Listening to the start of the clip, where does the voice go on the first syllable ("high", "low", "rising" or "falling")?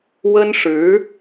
high